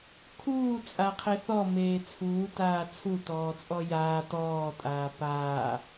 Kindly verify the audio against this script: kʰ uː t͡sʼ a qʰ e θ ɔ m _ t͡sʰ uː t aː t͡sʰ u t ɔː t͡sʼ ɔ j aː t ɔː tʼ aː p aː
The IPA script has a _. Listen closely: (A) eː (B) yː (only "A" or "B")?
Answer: A